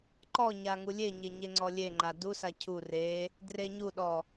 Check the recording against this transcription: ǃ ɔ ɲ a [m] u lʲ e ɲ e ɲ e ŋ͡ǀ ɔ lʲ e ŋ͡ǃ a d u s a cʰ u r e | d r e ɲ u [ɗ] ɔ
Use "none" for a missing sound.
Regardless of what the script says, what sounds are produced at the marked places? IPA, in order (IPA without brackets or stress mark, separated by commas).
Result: ŋ, ɗ